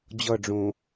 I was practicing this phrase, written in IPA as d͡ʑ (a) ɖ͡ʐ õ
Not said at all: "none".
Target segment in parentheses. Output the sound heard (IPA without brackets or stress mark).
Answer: ʌ